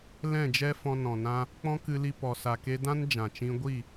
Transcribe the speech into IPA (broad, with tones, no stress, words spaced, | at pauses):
lɛ̃˦˨d͡ʒɛ˦ fɔ̃˧nɔ̃˨ nã˦ | k͡pɔ̃˦kɨ˧li˧ pɔ˨sa˨ke˧ dã˦nd͡ʒã˨t͡ʃĩ˧ ɡʷi˦˨